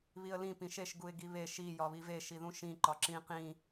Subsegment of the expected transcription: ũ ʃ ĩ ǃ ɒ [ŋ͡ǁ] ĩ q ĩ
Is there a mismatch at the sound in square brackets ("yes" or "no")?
yes